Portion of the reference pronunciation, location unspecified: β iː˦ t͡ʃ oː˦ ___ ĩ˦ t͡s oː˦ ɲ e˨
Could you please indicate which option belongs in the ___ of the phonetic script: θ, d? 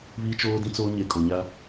d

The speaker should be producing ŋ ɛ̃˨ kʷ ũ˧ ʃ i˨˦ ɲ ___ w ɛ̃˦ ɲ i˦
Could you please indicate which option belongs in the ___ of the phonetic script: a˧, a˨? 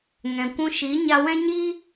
a˧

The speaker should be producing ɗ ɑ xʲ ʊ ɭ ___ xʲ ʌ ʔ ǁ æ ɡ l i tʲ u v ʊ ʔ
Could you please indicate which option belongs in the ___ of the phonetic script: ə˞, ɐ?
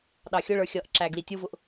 ə˞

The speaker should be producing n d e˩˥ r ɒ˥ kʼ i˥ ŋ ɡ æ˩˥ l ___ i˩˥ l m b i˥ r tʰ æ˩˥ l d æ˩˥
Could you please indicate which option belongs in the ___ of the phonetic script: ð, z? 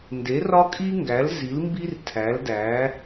z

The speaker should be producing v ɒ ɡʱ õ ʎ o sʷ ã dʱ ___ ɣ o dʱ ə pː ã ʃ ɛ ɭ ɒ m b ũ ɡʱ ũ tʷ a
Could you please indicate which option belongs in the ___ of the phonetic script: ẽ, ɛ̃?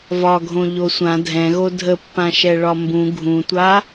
ɛ̃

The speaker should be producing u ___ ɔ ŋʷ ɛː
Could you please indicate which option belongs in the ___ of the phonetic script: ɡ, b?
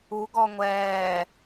ɡ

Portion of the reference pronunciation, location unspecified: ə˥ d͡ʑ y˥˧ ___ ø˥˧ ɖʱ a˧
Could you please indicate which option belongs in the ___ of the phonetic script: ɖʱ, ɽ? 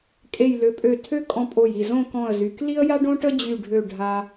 ɖʱ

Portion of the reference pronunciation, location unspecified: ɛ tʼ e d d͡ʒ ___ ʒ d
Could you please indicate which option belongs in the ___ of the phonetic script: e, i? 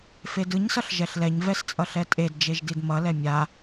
e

